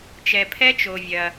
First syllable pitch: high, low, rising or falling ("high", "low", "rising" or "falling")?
low